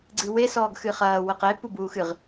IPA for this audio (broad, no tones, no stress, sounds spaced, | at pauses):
ɡ͡ǀ ɨ w e s ɔː ɡ x ɨ χ ɐː w ɘ q e p u b uː x ɨ ʁ